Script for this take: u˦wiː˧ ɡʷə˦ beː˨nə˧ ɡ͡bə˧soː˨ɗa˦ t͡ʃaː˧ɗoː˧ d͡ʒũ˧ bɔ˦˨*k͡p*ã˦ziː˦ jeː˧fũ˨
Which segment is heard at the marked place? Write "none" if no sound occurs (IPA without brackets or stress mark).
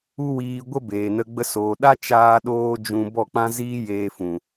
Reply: k͡p